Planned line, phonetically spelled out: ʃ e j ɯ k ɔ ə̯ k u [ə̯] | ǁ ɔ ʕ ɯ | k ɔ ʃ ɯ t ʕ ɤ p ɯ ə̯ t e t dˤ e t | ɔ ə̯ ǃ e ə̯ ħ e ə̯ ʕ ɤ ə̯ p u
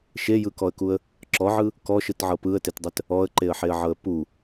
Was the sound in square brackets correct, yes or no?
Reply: yes